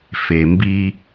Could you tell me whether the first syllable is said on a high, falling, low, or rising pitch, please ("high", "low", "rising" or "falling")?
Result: low